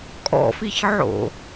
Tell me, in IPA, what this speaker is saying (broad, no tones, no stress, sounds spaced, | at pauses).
kʼ ɔ̰ f i ç ʕ o̰